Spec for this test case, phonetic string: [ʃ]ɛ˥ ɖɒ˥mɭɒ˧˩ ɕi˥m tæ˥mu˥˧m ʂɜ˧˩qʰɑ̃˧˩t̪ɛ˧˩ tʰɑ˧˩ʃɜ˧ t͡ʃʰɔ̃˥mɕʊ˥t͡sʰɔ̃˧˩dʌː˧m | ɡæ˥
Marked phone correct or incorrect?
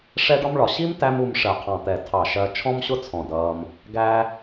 incorrect